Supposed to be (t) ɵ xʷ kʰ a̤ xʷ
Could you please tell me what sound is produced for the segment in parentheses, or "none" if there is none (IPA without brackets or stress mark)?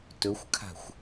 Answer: t